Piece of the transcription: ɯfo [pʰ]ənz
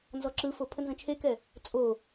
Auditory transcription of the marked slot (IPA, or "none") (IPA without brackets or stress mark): pʰ